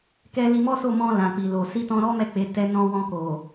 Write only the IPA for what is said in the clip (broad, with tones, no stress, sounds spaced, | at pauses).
k ɛ˧ l i˧ m ɔ˦ s o˦˨ m ɔ̃˧ l ã˨ k͡p i˨ l o˨ s i˧ t ɔ̃˧ ɾ ɔ˦ m ɛ˦˨ k͡p e˨˦ t ɛ˧ n ɔ̃˧ w ɔ̃˧ k o˨